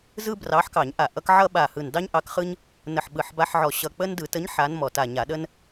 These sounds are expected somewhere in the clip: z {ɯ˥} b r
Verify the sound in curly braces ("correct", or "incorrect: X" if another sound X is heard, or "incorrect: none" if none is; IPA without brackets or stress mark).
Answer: correct